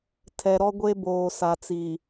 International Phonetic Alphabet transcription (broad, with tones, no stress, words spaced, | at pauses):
tʰɛ˨ɾɔ˦ɡʷe˦ boː˨sa˨t͡si˨